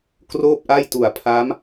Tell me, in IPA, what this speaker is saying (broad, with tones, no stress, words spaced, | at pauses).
kroː˥˩p̚ʔa˥˩jtu˨˩a̯pʰa˦˥m